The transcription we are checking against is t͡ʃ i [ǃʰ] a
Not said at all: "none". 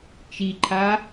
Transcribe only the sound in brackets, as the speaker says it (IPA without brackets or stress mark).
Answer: ǃʰ